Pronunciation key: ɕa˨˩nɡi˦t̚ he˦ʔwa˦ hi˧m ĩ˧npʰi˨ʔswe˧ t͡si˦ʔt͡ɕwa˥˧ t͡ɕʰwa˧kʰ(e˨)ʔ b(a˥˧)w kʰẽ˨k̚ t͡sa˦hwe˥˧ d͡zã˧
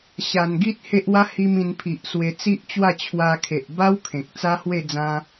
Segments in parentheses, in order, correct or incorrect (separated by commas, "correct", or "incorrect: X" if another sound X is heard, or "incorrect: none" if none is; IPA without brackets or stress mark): correct, incorrect: a˦